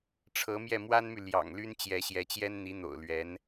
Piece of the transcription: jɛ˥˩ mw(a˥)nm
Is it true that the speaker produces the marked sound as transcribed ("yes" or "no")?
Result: yes